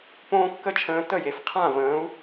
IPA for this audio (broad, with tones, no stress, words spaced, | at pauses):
põː˦kːə˦t͡ʃʰə̃ː˧ tə˦˨je˨f qʰã˦˨və̃ː˨˦u̯